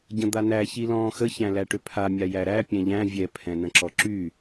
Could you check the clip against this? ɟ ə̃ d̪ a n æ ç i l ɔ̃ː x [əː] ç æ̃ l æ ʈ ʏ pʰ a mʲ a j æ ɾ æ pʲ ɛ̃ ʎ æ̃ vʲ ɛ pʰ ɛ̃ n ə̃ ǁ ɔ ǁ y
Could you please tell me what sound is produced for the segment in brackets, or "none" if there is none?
ə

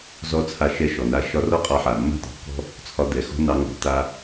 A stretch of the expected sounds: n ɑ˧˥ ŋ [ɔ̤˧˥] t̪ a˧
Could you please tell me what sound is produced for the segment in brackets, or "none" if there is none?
ɔ̤˩˧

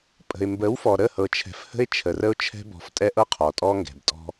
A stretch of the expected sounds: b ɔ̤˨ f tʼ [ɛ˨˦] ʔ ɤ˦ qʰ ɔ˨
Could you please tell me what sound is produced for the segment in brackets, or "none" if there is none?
ɛ˦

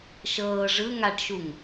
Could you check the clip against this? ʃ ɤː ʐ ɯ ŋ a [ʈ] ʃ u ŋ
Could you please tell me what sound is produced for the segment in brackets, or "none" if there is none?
ʈ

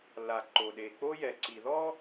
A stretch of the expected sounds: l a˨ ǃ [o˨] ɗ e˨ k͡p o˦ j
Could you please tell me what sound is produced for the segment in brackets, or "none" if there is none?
o˨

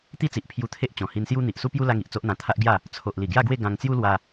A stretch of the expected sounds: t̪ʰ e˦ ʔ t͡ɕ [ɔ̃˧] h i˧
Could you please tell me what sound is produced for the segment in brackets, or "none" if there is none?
ɔ̃˨˩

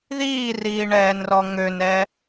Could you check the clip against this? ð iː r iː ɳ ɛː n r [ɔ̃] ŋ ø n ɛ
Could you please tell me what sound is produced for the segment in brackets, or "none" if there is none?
ɔ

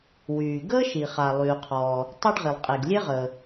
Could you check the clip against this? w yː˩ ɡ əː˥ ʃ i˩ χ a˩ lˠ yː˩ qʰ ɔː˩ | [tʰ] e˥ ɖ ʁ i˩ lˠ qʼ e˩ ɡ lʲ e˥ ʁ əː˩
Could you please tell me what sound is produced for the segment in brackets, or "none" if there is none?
tˤ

